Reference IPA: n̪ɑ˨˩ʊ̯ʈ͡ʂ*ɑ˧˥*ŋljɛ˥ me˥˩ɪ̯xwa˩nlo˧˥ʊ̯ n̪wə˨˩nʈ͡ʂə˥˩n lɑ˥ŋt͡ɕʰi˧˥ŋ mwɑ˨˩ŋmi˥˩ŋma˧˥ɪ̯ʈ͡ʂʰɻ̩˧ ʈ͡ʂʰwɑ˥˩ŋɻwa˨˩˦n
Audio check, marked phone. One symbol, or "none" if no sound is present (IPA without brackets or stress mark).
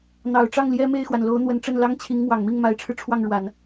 ɑ˥˩